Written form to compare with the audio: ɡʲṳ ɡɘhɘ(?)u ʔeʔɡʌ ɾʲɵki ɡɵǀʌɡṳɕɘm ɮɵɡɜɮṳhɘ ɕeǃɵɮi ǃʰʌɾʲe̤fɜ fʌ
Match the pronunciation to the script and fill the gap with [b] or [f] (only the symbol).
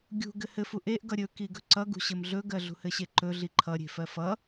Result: f